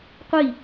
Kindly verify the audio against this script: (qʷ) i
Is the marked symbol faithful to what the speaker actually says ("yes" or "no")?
yes